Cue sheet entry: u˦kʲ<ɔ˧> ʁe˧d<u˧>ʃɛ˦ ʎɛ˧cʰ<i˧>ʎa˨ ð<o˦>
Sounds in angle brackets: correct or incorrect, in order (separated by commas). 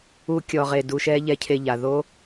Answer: correct, correct, incorrect, correct